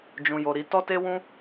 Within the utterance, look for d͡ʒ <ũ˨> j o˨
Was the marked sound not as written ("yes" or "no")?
no